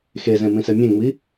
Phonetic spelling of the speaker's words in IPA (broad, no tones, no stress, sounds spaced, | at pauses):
x e z ẽ m ĩ s ɛ mʲ ẽ ŋ͡m i